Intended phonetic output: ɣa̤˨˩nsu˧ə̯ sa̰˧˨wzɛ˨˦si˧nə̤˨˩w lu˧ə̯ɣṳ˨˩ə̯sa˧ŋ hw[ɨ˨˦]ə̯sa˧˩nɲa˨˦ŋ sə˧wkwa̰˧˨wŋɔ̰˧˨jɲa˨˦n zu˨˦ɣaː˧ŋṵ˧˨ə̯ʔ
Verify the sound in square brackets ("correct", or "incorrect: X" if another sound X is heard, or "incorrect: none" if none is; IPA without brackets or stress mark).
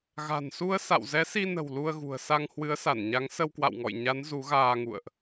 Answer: correct